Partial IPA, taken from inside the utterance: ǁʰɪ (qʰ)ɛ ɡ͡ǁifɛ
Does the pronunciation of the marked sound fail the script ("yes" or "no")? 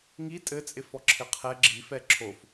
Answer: no